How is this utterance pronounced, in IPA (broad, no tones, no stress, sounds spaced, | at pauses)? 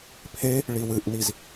pʰ e | ɭ i w ɨ ʔ n i z